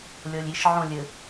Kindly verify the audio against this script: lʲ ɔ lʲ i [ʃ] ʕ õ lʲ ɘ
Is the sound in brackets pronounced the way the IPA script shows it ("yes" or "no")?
yes